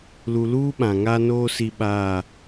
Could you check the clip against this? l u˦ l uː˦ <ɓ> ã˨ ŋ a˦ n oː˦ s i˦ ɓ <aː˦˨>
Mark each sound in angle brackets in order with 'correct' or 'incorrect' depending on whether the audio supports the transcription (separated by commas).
correct, correct